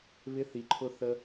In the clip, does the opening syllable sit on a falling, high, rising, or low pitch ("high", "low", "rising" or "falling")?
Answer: rising